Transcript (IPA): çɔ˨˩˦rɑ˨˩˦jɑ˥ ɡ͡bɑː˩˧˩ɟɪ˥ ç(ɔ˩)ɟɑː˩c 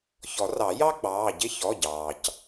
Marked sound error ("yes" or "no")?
yes